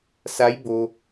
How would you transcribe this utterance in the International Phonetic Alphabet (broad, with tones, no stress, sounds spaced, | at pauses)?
s a˧˥ j b o˧